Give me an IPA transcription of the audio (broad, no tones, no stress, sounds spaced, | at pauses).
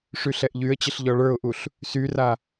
ʂ y ɬ ɛ ʔ ʎ y ə̯ t͡ɕ ə ɬ ʎ ɔ ɭ ə˞ ʊ̯ ʔ u ɬ | s y r a